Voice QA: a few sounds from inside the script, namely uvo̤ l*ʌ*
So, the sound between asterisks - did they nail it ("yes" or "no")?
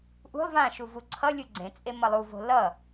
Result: yes